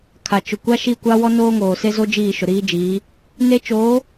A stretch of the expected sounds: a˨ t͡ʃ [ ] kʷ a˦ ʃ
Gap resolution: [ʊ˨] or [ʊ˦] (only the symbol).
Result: ʊ˨